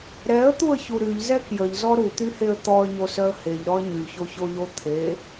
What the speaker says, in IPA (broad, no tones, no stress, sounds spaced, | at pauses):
ɾ ɛ ə̯ t̪ u ə̯ ç u ɾ y ʎ z ɛ k j ə ʎ z ɔ ɾ u t̪ y h e ə̯ t̪ ɔ ə̯ ɲ o s œ ə̯ h e ʎ ɾ ɔ ə̯ ɲ y ç o ç o ʎ o t̪ʰ e